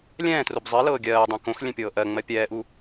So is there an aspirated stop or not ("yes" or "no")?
no